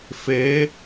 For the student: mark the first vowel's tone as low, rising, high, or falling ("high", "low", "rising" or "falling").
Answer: rising